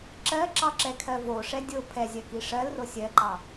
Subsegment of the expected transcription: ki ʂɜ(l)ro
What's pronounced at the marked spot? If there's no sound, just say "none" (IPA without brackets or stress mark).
l